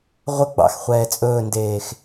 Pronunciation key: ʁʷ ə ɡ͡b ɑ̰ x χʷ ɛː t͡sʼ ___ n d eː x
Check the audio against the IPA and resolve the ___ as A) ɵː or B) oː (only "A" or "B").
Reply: A